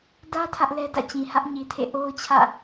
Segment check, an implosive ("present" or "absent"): absent